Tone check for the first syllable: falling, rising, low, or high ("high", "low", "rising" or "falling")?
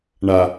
low